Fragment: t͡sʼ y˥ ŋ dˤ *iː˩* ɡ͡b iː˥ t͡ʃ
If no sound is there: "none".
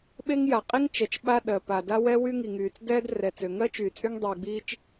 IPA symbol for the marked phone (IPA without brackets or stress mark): iː˩